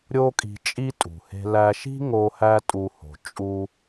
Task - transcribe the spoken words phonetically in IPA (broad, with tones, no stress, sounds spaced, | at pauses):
ɾʲ o˥ kʼ i̤˧ t͡ʃʼ i˥ tʼ ṳ˩ h e̤˧ l æ˧ ʃ i̤˥ ŋ o˧ h æ˥ tʼ u˧ h o̤˩ t͡ʃʼ u˧